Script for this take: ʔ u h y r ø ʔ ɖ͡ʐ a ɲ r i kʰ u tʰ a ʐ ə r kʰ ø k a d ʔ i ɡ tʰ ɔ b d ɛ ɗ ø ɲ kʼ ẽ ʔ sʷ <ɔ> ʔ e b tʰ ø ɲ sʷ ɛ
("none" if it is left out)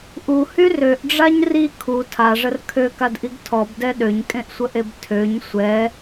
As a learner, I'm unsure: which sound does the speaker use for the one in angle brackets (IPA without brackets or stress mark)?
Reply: ə